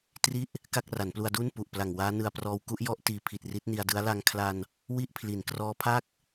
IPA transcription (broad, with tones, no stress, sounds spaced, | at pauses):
t r i˥˩ ʔ | k a˥˩ k̚ r a˩˦ n p l u˧ a̯ d uː˥˩ n p u˨˩ ʔ p l a˨˩ ŋ w aː˦˥ n ɯ˧ a̯ p r ɔː˦˥ w k u˦˥ ʔ j ɔ˥˩ ʔ t iː˨˩ pʰ i˨˩ t̚ r i˦˥ t̚ n i˧ a̯ d ɯ˦˥ a̯ l a˧ ŋ kʰ l a˧ n | w i˥˩ ʔ pʰ l i˩˦ n k r ɔː˦˥ pʰ a˥˩ k̚